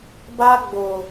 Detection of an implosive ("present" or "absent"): absent